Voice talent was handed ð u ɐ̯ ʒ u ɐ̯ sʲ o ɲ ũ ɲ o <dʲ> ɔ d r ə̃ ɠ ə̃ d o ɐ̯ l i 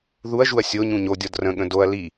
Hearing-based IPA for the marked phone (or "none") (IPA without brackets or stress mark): dʲ